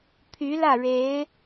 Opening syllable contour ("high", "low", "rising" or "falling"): rising